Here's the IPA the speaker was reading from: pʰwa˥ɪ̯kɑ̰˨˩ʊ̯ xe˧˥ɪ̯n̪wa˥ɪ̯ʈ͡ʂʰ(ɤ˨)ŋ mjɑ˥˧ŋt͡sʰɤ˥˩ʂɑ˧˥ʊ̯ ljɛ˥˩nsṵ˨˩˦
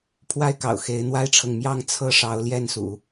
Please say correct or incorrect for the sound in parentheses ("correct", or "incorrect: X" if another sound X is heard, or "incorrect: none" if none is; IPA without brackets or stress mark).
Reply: correct